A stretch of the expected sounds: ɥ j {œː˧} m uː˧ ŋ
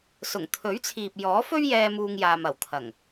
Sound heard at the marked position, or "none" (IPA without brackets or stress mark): ɛː˧